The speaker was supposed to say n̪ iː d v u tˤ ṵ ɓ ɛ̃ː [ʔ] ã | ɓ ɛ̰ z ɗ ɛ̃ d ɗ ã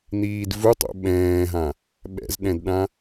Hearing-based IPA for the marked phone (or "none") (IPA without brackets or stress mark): ɦ